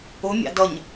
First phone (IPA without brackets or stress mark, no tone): ʊ